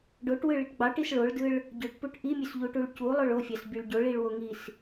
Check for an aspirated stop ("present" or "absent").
absent